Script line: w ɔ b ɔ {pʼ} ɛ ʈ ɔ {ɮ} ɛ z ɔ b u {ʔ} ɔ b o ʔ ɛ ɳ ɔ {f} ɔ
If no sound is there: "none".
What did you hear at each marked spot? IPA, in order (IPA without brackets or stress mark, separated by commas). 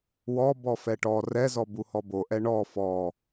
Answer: f, r, h, f